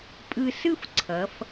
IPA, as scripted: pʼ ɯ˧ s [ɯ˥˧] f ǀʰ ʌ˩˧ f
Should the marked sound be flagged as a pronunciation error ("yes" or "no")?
no